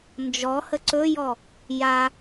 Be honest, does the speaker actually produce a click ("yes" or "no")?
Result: yes